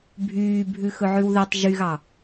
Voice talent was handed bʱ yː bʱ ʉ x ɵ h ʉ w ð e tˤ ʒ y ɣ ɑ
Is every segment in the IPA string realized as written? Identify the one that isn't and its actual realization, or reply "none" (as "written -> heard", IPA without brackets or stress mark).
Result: h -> ʕ